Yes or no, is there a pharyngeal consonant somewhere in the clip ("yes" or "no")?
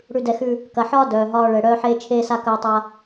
yes